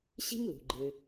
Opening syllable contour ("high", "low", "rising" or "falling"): high